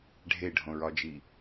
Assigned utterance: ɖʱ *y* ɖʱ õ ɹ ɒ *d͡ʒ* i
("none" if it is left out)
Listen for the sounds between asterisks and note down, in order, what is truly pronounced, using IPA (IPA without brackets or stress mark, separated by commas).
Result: e, d͡ʒ